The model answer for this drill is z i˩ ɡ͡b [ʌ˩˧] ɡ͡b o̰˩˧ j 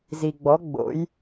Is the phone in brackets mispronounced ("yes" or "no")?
yes